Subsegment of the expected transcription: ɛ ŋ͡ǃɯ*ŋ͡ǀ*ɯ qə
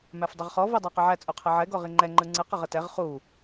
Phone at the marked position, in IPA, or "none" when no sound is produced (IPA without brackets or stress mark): ŋ͡ǀ